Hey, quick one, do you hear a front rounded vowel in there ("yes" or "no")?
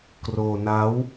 no